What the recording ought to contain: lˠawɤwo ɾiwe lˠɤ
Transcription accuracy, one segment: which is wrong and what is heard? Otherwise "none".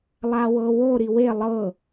none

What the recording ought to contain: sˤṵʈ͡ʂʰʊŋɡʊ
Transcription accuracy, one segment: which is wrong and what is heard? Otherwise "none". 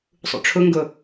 none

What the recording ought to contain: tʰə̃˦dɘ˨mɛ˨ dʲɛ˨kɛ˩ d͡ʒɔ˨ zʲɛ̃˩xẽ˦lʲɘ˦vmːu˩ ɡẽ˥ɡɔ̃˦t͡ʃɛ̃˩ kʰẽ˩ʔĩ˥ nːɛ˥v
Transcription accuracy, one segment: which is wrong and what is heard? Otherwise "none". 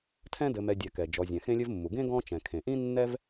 ə̃˦ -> ɛ̃˦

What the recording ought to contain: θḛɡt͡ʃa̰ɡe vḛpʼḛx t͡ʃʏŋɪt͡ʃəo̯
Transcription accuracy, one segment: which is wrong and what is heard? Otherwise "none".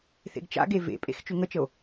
ɪ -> ə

